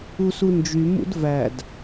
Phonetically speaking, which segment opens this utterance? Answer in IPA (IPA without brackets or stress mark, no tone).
u